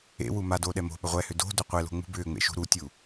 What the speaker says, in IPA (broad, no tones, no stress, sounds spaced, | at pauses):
ḛ w u m a d oː ɗ ɛ m o̤ ɓ ʏ ʁʷ ɛ h ʏ d o̤ d ɵ qʷ e l o̤ ŋ͡m ṳ b ʏː ŋ͡m ḛ ʃ ṳ ɾ u tʲ u